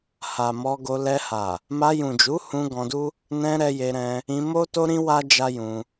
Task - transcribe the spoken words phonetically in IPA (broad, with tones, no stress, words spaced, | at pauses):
ha˨mɔ˧ɡo˧ lɛ˧ha˨ | ma˧jũ˨d͡ʒu˨˦hũ˧ ɡɔ̃˧du˦ | nɛ̃˧ ɾɛ˧je˧ɾɛ̃˧ | ĩ˧mo˦to˦ɾĩ˦ wa˦ d͡ʒa˦jũ˧